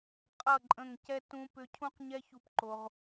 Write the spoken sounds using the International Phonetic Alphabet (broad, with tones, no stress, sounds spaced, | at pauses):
qʼ ʌ˦˨ ǃʼ ə̃˦˨ ŋ c ɛ˦ t ũ˦ p ʏ˧ cʰ ũ˦ q ɲ ɛ˦ ç u˧ p ǃ o˧ ʁ